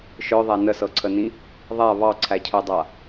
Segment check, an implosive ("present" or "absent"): absent